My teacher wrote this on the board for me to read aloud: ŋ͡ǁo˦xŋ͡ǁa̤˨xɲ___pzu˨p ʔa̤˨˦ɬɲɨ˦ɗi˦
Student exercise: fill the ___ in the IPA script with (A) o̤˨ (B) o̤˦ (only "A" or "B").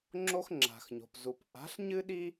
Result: A